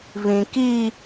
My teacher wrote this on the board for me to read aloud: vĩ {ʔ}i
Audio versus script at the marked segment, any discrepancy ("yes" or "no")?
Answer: yes